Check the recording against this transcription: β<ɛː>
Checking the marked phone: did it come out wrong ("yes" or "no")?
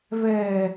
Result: no